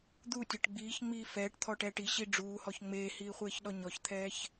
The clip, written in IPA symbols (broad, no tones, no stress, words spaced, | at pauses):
d̪utʲɤʈ ɡ͡biːçŋ͡miː fɛːʈt̪ʰɔʈɛːʈ iɕi ɖ͡ʐuːhɔç ŋ͡meːhiːχʷeːçɗɔ ɲɔçt̪ʰɛːç